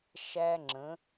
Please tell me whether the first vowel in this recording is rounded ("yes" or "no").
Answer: no